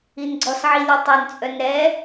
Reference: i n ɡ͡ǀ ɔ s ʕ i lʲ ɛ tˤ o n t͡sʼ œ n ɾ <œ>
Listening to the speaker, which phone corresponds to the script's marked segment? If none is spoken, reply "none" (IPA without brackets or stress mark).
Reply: ɛ